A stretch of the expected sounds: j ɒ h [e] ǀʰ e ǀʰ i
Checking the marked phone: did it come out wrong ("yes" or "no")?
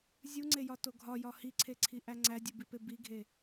yes